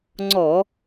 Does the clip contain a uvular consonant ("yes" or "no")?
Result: no